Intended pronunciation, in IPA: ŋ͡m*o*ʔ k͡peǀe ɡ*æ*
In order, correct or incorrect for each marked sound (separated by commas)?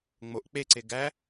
correct, correct